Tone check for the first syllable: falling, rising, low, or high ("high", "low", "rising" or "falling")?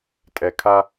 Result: low